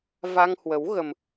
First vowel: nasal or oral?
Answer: oral